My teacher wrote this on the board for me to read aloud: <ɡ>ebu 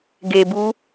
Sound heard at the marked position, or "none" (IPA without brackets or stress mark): ɡ